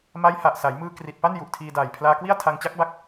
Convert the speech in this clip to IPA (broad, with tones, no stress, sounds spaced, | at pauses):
m a˦˥ j h a˨˩ ʔ s a˩˦ j m ɯː˧ k r i˨˩ t̚ p a˥˩ n j u˨˩ ʔ tʰ iː˧ d aː˨˩ j pʰ l aː˧ k w i˥˩ a̯ tʰ a˧ ŋ t͡ɕ a˦˥ k̚ b a˦˥ k̚